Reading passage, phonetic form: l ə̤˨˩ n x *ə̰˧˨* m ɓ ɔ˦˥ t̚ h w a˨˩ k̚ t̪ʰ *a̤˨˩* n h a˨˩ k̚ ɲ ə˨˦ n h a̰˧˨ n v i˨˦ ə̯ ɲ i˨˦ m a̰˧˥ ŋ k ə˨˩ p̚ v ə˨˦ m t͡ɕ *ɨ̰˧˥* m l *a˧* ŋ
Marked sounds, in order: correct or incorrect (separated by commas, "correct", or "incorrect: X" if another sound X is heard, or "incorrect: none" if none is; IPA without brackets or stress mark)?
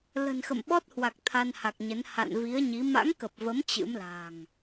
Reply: correct, incorrect: a˧, correct, incorrect: a̤˨˩